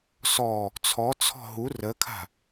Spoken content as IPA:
s ɔ | t͡sʰ ɔ t͡sʰ ɔ̤ ɦ u r ə kʰ a̤

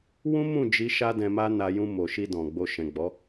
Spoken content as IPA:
w ũ˦ m ũ˦˨ d͡ʒ i˧ ʃ a˦ d ɛ̃˧ m a˦ n a˧ j ũ˧ m o˨ ʃ i˧ d ɔ̃˨ ɡ͡b o˧ ʃ ɛ̃˨ ɡ͡b ɔ˨˦

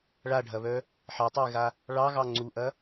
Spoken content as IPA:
ɭ a ɖʱ ɐ β œ | ħ ɑ tˤ ə ɪ̯ ɣ a | ɭ ɑ ɣ ɑ ŋ͡ǀ u ʔ ɐ

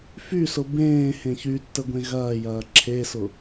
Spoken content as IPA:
f y s ʊ b ẽː h ẽ ç y tː ə ɡʷ ẽ ɣ ɐː j ɐː ǁʰ e s ʊ

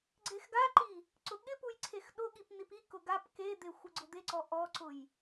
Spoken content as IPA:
ɡ͡ǀ e x ɡ a ǃ i | ǀ ʊ ɠ ɪ p u j ǀʰ e x ɗ ʊ ɠ i p n̪ i p i k ʊ ɡ a p k e d̪ e xʷ ɪ ɡ͡ǀ ʊ d̪ e ǀ ɔ ʔ ɔ ǀ ʊ j

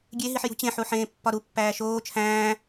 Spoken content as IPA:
ɡʲ e ɦ i ħ j ṳ t͡ɕ ẽ ħ u ħ ẽː pː ɒ ɾ u pː æː ʃ oː t͡ʃʰ æ̃ː

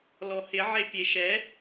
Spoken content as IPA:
l ɔ h ɪ ʕ e pʲ e ʃ ɛ

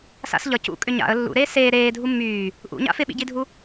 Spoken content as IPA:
s a̰ s ʎ ʌ c ṵ kʼ ʏ ɲ a̰ ə̯ lː ṵ ɾ eː s eː ɾ eː dʱ u mː yː | ʔ ṵ ɲ a̰ f ɪ ɓ ḭ ɟ i dʱ u

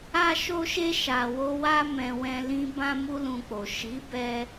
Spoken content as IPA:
a˧ ʃ o˧ ʃ e˧ ʃ a˨ w o˧ w a˧ m ɛ̃˨ w ɛ̃˧ l ĩ˦ b ã˧ m u˧ l ũ˧ k͡p o˨ ʃ i˨˦ b ɛ˧

